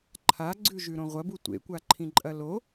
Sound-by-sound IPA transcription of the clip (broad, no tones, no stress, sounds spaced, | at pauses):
ǃʰ a ɡ͡ǀ ʉ ʒ ʉ ɾ õ ʁʷ ɐ b u tʷ ḛ kʷ a ǃʰ ĩ ǃʼ ɐ l o